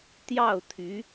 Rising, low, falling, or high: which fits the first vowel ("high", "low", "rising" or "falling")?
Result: falling